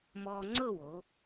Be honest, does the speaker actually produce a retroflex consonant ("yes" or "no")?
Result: no